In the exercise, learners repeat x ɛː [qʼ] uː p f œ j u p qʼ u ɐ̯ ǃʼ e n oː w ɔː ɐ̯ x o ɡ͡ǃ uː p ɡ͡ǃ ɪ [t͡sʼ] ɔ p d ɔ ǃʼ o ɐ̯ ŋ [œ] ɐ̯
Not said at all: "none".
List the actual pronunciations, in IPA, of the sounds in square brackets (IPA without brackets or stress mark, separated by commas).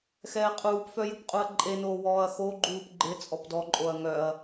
qʼ, t͡sʼ, œ